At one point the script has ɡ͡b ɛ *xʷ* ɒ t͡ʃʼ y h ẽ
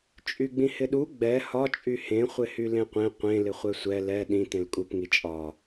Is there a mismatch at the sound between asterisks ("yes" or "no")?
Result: yes